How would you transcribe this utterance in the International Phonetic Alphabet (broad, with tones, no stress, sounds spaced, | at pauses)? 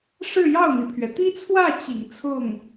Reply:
ʂ ɻ̩˥˧ j ɑ˥˩ ʊ̯ n̪ i˩ pʰ ɥ ɛ˩ t̪ i˥ t͡sʰ w ä˥˩ t͡ɕ ḭ˨˩ ŋ t͡sʰ ʊ˥˩ ŋ